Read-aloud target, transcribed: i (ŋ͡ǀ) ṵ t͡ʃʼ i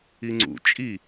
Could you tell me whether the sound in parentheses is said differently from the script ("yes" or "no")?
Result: no